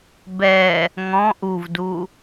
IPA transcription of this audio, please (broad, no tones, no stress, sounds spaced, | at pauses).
b ɛ | ŋ ɔ̃ ʔ u v d u